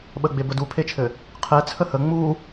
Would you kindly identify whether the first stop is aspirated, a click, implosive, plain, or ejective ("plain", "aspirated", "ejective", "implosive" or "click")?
implosive